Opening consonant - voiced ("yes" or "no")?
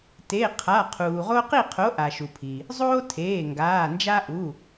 no